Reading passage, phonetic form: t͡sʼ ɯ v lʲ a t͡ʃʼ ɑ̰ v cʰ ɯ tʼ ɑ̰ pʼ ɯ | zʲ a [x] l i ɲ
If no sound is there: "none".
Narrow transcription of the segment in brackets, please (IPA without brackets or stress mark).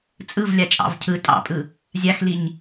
x